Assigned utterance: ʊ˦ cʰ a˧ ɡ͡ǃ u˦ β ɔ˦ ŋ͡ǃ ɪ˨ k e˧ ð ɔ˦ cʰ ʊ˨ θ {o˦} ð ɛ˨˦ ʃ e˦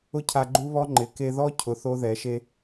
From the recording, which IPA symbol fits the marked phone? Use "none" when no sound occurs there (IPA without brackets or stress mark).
o˦